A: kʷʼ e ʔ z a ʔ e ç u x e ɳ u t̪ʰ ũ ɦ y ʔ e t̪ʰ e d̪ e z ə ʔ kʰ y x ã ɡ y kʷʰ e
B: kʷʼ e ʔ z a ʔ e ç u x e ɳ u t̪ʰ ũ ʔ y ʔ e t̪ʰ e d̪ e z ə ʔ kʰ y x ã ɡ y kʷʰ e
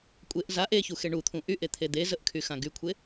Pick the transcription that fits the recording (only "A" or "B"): B